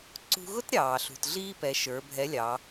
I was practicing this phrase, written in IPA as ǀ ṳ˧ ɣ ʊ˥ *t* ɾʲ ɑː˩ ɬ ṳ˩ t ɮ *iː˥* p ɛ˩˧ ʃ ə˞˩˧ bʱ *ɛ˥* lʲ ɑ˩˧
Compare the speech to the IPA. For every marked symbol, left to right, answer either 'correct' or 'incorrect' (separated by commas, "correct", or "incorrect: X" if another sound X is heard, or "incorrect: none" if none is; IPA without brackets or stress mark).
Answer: correct, correct, incorrect: ɛ˧˥